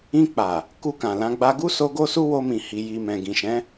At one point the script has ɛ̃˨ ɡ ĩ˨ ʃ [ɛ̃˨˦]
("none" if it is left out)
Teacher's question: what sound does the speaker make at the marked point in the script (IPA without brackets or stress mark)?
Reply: ɛ̃˨˦